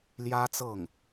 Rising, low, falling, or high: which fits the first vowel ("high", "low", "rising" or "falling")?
high